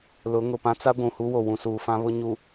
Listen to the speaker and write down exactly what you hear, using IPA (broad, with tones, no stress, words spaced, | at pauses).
lʊ˨˦ ŋʊ˨pã˦t͡sa˦ ɡʷũ˨hu˦wo˨ wũ˨suː˨fã˦βʊ˦ ɲu˨